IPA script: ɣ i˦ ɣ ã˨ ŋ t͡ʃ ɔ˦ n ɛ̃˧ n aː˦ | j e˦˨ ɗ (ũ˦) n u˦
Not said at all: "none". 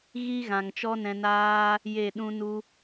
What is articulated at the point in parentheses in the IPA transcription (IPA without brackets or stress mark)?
ũ˦